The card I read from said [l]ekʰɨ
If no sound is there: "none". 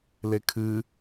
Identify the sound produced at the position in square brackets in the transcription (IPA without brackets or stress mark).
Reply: l